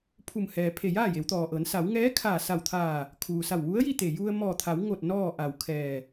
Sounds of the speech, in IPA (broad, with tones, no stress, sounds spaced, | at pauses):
pʰ u˧˩ m h ɛː˩ pʰ e˧˩ j aː˥˨ j e˩˧ w t̪ ɔː˩ ʔ ɤː˩˧ n s a˩˧ w ŋ ɛː˧˥ kʰ aː˧˩ s a˧˩ w t̪ʰ aː˧˩ | kʰ uː˩ s a˧˩ w ʋ u˧˥ ə̯ j i˥˨ t̪ e˧˩ j u˧ ə̯ m ɔː˧˩ t̪ʰ a˩˧ w ŋ o˧˩ t̚ n ɔː˥˨ ʔ a˧˩ w kʰ ɛː˧˩